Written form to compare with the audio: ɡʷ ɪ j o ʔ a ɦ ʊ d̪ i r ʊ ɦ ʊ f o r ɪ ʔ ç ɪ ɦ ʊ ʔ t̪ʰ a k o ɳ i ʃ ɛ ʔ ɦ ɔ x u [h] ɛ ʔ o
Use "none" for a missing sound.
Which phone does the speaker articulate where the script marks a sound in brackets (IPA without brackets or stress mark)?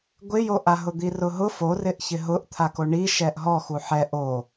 ħ